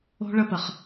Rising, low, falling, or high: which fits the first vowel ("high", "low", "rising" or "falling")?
high